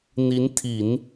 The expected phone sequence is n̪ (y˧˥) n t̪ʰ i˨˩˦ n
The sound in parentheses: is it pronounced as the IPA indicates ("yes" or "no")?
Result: no